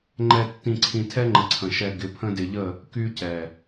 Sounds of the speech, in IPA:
ŋ͡ǃ ɛ˨ tː ĩ˨ ǀʰ ĩ˨ tʰ ɛ˦ ŋ͡ǃ ə˨ ǀʰ ə̃˨ ʃ ɛ˨ ɡ ɪ˨˦ pʰ ə̃˦ d ɪ˨ ʎ ə˦˨ | k y˦ c ɛ˨

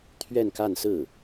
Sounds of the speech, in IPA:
t̪ʰ ɥ ɛ˥˧ n k a˥˧ n s ɹ̩˥˩

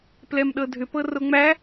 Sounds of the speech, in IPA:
p l ɛ m ɗ ɤ dʱ ʏ p ɤ r o ŋ͡m æ

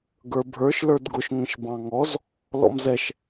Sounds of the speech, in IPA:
ɡ ə˞ bʱ ə˞ ʃ l ə˞ d ɡ ʊ ʃ ŋ ə̃ ʃ b ɑ̃ ŋ ɔ z | l ɔ̰ m z ɛ ʃ

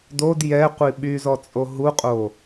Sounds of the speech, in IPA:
d o d j ɛ qʷ i ɓ y z ɔ t͡sʼ o ɦ u qʼ o

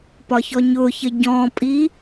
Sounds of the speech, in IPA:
p ɒ ç ɔ ɲ ʊ ç ə ɟ ɔ̃ pʼ i

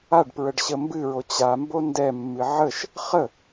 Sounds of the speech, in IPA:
a ɖ p ɹ ə ɖ ɕ ə m b ɨ ɹ o t͡ɕ a m b o n d ɛ mː ɨ ʕ ə ʃ | χ ə

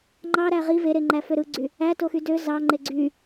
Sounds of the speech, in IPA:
ŋ͡ǃ ɑ ɾ æ ʁ i v e ɾ e ŋ͡ǃ æ f ø ɾ ɯ ɡ͡ǀ y | æ t o x y d ø z ɑ ŋ͡ǃ e ɡ͡ǀ y

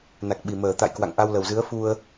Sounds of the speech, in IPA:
n a˨˩ k̚ ɓ i˨˩ m əː˧˩ t̪ a̰˧˨ j k w a̰˧˨ ŋ ʔ a˧ w l ə˨˩ w z ɨ˨˦ ə̯ f u˧ ə̯

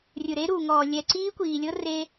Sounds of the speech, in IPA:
rʲ ɯ˨ ɾ e˦ ɾ u˨ ŋ ɔː˨ lʲ ɛ˨ ǀ iː˦ kʷ iː˨ lʲ ɤ˦ r e˦

